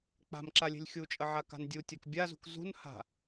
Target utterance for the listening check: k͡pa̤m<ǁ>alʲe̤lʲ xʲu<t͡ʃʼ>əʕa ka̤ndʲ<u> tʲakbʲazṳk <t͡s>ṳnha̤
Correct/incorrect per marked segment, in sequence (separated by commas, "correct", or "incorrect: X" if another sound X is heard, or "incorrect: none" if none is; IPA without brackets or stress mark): correct, correct, correct, incorrect: z